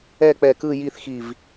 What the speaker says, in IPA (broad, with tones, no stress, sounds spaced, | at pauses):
ɛ˥˨ k͡p ɛ˧˩ k ɯ˥˨ j i˥˨ θ x i˧˩ v